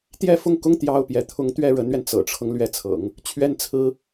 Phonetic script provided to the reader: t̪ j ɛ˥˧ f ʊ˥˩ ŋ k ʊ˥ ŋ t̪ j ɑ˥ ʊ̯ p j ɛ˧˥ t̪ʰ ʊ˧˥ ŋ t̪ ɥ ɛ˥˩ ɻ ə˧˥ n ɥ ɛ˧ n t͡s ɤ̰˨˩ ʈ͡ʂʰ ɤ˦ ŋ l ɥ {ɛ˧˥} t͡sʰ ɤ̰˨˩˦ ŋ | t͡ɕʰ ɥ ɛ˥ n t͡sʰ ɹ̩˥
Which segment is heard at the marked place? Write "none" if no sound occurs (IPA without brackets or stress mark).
ɛ˧˥